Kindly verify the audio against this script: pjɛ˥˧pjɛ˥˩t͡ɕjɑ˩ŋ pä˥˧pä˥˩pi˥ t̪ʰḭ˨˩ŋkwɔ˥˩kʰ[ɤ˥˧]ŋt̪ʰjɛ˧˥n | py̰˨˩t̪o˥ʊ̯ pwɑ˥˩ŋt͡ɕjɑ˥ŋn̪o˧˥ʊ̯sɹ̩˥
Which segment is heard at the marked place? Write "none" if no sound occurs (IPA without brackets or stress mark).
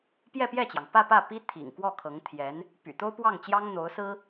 ɤ˧˥